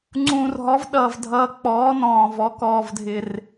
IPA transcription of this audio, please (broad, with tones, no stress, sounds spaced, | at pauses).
ŋ͡ǀ ũː˨˩ r ɦ ɔ˩˥ v ɗ ʌː˨˩ v dʱ ʌː˨˩ k͡p ɔː˩˥ n ɔ̃ː˨˩ v ɔ˩˥ k ɔː˨˩ v dʱ ɪ˨˩ r